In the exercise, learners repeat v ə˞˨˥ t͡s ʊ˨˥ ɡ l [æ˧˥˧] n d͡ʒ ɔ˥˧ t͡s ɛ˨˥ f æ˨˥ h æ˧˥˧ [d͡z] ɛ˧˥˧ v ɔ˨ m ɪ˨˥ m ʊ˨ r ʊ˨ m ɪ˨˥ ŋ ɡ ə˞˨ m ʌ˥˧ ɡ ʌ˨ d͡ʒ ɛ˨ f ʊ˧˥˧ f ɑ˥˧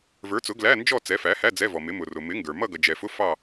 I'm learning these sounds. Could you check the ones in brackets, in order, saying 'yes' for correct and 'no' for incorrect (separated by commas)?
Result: yes, yes